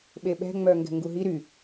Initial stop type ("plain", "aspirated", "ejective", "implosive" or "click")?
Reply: implosive